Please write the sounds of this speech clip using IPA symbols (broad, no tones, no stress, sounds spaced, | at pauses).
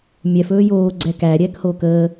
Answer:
mʲ ɛ f ɵː j oː ɡ͡ǀ ɛ k æ ɾʲ ɛː k h oː k əː